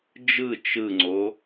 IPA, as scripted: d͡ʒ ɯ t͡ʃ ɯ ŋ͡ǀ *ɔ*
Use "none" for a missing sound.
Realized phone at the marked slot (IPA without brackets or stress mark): o